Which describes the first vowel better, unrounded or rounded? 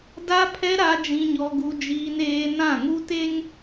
unrounded